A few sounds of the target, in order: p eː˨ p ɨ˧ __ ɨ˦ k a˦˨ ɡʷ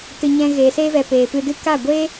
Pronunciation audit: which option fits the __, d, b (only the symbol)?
d